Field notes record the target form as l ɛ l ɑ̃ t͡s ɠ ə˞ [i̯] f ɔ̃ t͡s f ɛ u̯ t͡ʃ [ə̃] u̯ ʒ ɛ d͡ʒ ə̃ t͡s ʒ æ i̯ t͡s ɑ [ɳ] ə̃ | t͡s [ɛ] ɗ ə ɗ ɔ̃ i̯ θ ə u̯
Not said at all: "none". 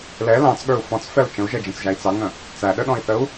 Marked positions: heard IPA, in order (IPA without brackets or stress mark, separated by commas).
u̯, ə̃, ŋ, æ